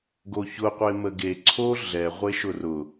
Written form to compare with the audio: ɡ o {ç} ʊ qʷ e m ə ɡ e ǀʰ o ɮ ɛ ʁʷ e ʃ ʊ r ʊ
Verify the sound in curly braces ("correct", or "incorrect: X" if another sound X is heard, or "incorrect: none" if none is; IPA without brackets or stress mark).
correct